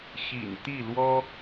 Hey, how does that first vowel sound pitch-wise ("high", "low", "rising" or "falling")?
low